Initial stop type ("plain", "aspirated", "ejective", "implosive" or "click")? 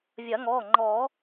click